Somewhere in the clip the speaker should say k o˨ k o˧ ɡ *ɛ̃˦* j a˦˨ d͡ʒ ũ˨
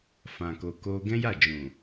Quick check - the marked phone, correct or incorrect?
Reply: correct